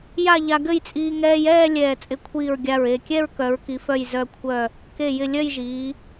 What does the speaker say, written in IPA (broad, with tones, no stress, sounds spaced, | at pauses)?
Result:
j a˥˧ ʎ a˧ ɡ ɘ˥˧ j t͡sʼ iː˧ ŋ ɛː˧ j ɛː˥˧ lʲ ɛː˧˩ t͡sʼ ɪ˧˩ kʷʰ iː˧˩ ɹ ɡʲ a˧˩ ɹ e˧˩ kʲ ɛ˥˧ ɹ k œ˩˧ ɹ k i˩˧ f œ˧˩ j z œ˧˩ kʷʰ œ˧˩ | k e˧˩ j ɪ˧˩ lʲ œ˥˧ j ʒ iː˩˧